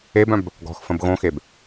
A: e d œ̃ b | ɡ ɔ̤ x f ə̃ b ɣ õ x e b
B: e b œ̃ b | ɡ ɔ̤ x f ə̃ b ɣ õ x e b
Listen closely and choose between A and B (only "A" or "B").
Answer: B